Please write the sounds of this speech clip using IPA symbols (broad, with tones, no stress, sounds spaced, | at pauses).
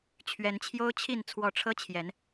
t͡ɕʰ ɥ ɛ˨˦ n t͡ɕʰ j o˦ ʊ̯ t͡ɕʰ i˥˨ n t͡sʰ w ɔ˨˦ ʈ͡ʂʰ ɤ˦ t͡ɕʰ j ɛ˨˦ n